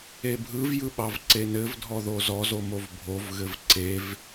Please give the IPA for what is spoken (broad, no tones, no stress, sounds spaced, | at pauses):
e bʱ ɯ v j ɯ ɓ ɑ v ǀ e n ɘ v dʱ ɔ ð o z ɔ z o m o v bʱ o v ɣ ɘ v ǀ e v